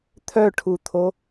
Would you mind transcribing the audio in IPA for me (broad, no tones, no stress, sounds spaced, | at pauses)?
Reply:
t̪ʰ œ ʈʰ u t̪ʰ o